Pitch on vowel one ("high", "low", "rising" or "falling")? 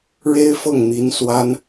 high